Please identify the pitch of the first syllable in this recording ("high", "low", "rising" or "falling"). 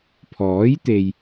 rising